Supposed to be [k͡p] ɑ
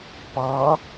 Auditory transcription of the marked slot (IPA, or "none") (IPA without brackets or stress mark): p